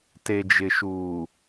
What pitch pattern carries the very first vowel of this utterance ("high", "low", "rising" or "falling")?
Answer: low